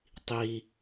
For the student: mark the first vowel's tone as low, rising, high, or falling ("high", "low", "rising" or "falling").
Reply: low